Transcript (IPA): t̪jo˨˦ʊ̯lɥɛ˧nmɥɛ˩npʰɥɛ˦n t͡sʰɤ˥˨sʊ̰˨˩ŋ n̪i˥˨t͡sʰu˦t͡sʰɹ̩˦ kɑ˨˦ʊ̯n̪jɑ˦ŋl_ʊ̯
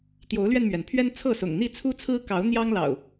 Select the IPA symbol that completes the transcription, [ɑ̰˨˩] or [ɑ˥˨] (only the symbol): ɑ̰˨˩